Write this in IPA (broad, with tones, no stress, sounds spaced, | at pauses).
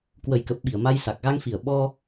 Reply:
k w ə˨˩ j k ə˨˩ p̚ ɓ i˧˩ ə̯ m a˧ j s a˨˩ k̚ ɣ a˧ ŋ f i˨˩ ə̯ ɓ ɔ˧